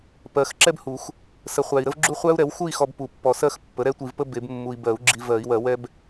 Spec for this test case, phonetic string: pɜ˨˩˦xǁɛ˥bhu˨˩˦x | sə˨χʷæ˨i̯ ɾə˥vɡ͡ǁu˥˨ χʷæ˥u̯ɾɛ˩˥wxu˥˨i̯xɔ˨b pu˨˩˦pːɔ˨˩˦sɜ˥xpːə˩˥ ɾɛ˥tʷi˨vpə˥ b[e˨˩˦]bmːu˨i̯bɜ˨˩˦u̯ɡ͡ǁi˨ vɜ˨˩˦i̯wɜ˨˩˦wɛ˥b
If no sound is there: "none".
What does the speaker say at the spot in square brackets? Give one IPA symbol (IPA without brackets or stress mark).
e˨˩˦